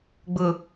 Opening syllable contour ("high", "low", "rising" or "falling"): low